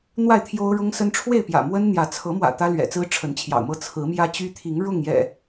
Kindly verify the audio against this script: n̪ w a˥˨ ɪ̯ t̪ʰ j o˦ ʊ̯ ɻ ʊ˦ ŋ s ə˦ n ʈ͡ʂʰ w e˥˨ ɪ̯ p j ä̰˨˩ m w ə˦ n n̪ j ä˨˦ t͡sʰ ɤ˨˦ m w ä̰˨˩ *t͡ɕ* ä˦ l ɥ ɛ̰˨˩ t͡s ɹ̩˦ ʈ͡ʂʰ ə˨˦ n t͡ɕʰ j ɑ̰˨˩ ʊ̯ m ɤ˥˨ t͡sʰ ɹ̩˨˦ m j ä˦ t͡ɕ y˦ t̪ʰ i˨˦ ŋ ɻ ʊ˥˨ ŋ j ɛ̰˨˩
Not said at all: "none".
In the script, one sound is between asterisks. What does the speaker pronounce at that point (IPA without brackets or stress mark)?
t̪